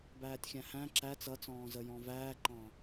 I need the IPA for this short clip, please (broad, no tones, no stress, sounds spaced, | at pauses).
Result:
b æː tʲ xʲ æ̃ h æ̃ ǁ æ t͡s ʌ t͡s ɔ̃ː z ə j ɔ̃ v æː ǃ ɑ̃